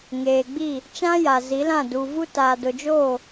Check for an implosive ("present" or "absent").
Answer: absent